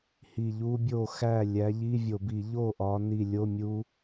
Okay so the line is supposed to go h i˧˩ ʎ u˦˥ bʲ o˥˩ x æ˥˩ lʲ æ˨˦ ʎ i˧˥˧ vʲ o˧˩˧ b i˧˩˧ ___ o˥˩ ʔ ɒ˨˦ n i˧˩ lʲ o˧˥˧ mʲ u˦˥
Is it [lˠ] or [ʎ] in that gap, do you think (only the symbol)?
ʎ